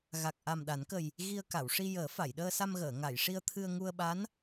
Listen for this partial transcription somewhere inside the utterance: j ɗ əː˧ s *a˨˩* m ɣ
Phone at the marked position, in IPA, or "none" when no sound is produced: a˧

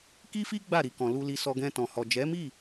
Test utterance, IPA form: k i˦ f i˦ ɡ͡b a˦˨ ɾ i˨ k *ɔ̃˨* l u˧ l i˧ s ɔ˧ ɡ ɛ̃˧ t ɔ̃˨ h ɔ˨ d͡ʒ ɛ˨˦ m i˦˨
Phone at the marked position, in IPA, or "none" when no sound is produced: ɔ̃˨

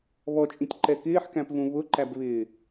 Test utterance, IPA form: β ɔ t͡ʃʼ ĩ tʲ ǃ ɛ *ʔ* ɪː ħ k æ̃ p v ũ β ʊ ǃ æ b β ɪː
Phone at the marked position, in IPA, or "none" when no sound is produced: k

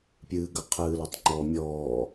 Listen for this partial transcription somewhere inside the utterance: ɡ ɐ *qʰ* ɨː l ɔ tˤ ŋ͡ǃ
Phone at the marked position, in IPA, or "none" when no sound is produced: qʰ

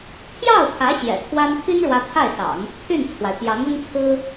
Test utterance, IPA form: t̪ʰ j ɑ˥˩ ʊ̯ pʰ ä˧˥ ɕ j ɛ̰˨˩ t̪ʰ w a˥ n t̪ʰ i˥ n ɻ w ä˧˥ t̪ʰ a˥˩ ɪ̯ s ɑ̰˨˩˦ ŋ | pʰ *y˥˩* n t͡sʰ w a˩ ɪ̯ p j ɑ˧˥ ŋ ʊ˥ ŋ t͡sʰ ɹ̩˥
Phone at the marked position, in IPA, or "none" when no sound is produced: y˥˩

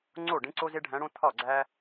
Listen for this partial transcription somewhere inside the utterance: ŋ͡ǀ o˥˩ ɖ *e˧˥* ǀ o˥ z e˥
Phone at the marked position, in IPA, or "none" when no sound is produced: ẽ˧˥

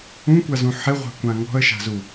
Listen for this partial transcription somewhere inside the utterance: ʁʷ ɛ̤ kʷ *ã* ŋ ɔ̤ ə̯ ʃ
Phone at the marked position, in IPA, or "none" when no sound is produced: ã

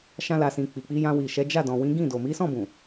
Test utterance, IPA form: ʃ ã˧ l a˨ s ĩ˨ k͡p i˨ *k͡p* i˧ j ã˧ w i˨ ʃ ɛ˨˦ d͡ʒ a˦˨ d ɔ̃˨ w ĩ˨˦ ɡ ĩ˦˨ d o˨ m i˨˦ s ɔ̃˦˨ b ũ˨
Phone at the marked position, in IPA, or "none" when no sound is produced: k͡p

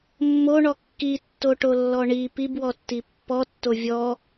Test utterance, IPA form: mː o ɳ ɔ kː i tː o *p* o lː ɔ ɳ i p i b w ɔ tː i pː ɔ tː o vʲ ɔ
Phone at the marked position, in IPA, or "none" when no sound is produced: ʈ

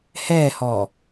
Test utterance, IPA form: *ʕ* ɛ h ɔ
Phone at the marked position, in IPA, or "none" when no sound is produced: h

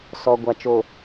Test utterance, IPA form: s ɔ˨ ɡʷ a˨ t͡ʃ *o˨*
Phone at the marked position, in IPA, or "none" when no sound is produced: o˨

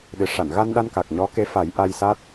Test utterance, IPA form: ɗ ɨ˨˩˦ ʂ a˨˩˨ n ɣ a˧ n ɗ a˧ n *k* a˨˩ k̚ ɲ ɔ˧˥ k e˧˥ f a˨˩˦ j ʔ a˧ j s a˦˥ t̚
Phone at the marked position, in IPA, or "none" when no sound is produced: k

